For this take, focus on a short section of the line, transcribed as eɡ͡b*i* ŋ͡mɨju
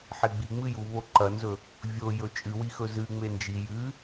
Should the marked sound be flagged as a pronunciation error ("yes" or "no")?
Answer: no